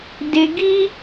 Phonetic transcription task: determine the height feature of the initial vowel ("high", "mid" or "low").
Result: mid